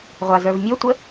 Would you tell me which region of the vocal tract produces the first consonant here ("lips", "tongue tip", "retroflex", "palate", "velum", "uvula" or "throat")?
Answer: uvula